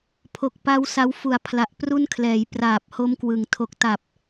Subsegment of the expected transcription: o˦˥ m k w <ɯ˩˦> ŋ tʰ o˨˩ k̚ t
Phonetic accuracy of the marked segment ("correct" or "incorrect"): correct